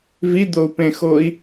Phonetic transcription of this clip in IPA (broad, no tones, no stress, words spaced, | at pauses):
vid̪ou̯pẽxoi̯